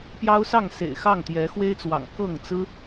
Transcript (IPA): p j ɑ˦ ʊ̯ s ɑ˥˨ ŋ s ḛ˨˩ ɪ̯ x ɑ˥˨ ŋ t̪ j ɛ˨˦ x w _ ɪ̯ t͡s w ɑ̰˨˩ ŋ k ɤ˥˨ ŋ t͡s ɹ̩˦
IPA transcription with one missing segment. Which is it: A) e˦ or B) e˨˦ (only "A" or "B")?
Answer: A